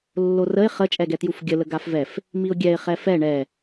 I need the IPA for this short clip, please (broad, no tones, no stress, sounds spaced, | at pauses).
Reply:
lː o r ə ɪ̯ χ ə t͡ʃʼ ɛ ɡ ɛ t j u f ɡʲ ə l ə ɡ a f v ɛ f | m i ʊ̯ ɡʲ ɛ ɪ̯ χ ɛ f ɛ ɳ ɛ